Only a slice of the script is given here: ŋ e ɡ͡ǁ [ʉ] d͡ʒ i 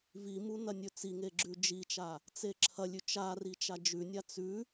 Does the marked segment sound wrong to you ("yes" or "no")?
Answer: no